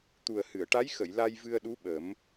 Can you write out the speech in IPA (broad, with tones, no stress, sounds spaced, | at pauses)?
t̪ u˨˩ ə̯ h ɨ˨˩˨ ə̯ ʈ a˧˥ j x ə˨˩˨ j l a˧ j v ɨ˧ ə̯ ɗ u˧˥ ɓ ə˨˩˦ m